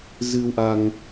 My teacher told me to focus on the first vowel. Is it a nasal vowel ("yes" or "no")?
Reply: no